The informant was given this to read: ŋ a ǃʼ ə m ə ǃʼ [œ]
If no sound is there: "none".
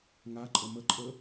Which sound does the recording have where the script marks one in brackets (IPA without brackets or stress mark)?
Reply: ə